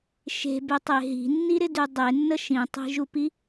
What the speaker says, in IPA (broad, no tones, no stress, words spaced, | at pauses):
ʃe̤bytˤe ɦi̤nːiɾɪdy dˤenːə ʃĩtˤi̤ʒupi